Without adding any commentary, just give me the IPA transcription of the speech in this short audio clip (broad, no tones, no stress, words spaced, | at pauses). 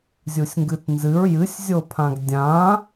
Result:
zʲusʲŋɡɨtnzɨɹ jɨsʲzʲopʰãɡ dʲã